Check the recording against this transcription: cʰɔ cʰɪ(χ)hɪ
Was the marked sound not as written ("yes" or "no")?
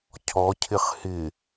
no